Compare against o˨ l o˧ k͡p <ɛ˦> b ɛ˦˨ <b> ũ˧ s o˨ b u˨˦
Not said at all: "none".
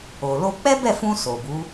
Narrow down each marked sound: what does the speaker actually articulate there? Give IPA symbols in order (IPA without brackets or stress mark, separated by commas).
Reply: ɛ˦, f